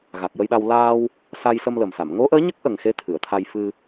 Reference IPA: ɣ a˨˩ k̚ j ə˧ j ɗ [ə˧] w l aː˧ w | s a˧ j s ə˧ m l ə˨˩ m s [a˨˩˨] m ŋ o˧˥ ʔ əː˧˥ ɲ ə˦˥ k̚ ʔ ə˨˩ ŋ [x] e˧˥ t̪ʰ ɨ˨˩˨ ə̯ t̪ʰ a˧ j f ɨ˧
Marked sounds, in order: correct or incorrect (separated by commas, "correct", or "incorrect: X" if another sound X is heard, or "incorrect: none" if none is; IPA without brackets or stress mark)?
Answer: incorrect: a˧, correct, correct